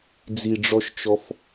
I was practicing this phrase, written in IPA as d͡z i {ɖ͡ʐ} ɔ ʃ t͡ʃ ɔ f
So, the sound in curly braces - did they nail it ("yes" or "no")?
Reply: yes